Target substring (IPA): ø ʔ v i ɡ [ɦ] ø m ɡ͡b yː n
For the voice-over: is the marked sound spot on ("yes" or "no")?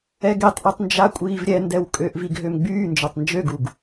yes